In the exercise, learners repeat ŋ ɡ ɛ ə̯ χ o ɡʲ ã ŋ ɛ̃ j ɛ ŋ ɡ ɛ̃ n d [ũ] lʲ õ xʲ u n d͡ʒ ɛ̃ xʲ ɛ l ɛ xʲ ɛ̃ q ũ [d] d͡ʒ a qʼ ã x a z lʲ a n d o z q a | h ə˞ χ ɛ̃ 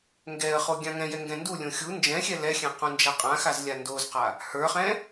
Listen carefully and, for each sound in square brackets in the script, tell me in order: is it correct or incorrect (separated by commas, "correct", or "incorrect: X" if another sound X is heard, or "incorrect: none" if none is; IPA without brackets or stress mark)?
incorrect: u, incorrect: n